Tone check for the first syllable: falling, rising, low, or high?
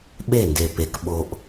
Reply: falling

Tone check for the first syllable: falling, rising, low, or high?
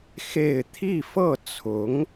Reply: falling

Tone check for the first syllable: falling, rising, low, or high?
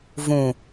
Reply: low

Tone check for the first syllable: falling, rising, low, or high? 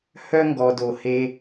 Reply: high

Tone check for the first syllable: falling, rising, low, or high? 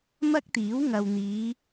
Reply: high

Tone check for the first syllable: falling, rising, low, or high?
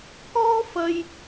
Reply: high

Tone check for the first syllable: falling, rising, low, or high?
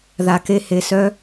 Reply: low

